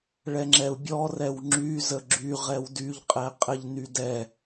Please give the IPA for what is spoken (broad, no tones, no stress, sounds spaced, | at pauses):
ɭ ɛ ŋ͡ǁ ɛ u̯ bʲ ɔ r ɛ w ŋ͡ǁ y z ə ɡ͡ǁ y ʁ ɛ w d y ʎ qʼ ɛ qʼ ɛ ʎ n y d ɛ